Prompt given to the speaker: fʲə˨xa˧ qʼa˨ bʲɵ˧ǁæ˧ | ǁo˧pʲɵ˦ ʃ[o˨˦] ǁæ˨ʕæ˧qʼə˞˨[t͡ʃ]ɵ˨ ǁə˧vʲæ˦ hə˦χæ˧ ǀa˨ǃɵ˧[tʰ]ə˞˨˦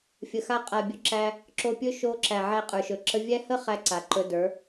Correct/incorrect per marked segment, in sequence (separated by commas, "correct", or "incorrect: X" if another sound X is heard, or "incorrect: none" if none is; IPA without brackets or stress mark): incorrect: o˧, incorrect: ʃ, incorrect: d